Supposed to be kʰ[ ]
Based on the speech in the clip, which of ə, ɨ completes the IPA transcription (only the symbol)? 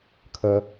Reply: ə